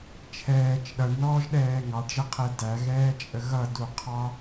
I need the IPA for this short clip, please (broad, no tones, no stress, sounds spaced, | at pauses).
t͡ʃʰ ɛː t͡ʃ ɗ ʌ ɳ n ɔː ʒ ɗ ɛː ŋ ɑ ɖ ʒ ə qʰ ɛ d æ ɣ ɛː t͡ʃʼ ə ɣ ʌ d u qʰ ɑ